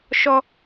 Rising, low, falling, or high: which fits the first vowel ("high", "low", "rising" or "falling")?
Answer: high